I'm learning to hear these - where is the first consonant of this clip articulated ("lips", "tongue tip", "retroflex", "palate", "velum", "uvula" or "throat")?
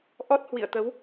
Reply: throat